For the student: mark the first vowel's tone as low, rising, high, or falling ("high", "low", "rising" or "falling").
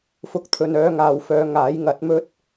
rising